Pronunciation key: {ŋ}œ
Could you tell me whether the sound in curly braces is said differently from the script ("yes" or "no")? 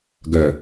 yes